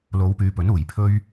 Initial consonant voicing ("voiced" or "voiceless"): voiced